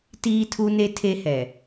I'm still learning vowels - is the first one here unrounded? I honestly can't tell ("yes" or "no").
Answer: yes